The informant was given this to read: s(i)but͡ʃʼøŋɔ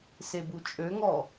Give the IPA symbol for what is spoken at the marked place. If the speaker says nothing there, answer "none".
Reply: e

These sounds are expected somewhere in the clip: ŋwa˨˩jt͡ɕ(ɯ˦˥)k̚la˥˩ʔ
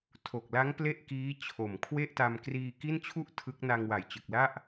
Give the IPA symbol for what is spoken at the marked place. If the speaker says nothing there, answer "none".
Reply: ɯ˨˩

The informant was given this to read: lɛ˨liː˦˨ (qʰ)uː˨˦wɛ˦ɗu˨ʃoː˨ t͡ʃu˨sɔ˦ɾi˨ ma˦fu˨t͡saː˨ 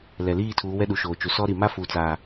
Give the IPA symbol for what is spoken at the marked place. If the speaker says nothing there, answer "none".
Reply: tʰ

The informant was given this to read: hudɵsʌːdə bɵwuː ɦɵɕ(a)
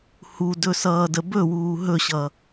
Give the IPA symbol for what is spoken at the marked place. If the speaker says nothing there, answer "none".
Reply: ʌ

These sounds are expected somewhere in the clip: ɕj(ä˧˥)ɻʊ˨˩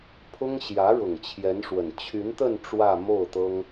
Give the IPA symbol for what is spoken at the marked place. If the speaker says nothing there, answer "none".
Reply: ä˧˥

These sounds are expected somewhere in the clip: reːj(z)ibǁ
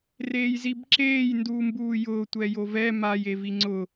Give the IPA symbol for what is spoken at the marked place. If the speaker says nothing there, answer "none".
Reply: z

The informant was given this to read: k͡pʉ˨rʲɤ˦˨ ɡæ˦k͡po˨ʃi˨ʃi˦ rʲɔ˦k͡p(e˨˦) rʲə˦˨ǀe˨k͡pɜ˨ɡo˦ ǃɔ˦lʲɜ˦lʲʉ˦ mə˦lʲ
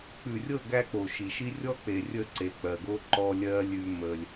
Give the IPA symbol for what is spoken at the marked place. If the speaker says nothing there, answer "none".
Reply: e˨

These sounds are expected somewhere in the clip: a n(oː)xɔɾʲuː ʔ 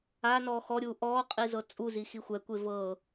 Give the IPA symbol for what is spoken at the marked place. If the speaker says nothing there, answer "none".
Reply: ɔː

